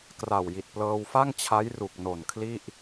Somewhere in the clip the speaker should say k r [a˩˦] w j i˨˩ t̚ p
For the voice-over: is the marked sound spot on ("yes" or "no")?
no